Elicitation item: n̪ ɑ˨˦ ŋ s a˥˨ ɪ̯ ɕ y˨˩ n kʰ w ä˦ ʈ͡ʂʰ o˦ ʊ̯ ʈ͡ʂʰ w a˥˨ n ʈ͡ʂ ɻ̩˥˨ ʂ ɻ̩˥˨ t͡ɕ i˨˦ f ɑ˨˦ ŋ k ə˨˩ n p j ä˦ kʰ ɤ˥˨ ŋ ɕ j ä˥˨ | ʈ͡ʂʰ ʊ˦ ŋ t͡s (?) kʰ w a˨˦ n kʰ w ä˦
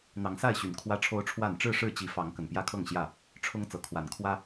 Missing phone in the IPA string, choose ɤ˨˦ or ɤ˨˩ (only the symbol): ɤ˨˩